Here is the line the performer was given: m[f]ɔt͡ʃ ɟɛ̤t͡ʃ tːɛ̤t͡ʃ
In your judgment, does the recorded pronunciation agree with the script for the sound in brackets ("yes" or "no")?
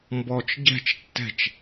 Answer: no